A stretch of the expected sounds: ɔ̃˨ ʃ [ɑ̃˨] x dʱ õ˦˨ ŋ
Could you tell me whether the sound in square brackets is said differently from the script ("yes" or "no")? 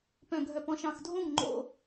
no